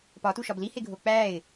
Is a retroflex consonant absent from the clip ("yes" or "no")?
yes